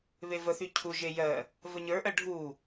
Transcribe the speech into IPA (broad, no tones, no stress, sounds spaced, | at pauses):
β e v ə θ y cʰ u ʒ e j ɜ | v ə ɲ ə˞ ʔ ɜ ɖʱ u